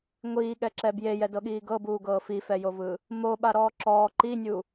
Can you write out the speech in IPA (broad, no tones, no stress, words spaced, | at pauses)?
ŋʷiːɠɛǁɛ bjejɛdɤɠiː ɡɤbuːɡɤː fifɛjovɯ | moɓaɾɔː ǁɔː ǃinʲu